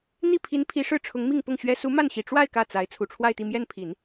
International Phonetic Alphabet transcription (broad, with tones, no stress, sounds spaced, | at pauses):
n̪ i˥˩ pʰ i˧˥ n pʰ i˧˥ ʂ ɻ̩˥˩ ʈ͡ʂʰ ʊ˧˥ ŋ m i˥˧ ŋ p ʊ˥˩ ŋ ɕ ɥ ɛ˥ s u˧˥ m a˥˩ n ɕ i˨˩ ʈ͡ʂ w a˥˧ ɪ̯ k ä˥˩ t͡s a˧˥ ɪ̯ t͡sʰ u˨˩ ʈ͡ʂʰ w a˥˧ ɪ̯ t̪ i˥˧ m j ɛ˥˩ n pʰ i˨˩˦ n